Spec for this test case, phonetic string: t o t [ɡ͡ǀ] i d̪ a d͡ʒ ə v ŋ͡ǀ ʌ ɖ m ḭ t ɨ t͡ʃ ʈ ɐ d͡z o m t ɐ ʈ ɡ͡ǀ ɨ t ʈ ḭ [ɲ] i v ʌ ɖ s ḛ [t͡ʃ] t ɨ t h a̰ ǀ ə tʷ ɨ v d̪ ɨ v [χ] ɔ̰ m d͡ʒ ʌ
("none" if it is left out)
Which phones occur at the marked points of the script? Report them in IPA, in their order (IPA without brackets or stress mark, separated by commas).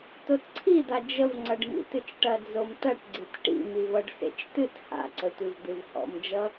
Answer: ǀʰ, m, t͡ʃ, h